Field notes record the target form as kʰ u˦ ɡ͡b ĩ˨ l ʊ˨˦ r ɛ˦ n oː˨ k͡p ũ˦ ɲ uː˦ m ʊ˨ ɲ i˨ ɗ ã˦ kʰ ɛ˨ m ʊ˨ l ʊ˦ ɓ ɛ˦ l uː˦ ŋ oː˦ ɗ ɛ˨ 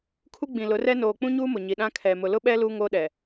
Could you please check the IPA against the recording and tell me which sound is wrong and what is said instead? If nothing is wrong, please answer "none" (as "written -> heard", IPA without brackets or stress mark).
none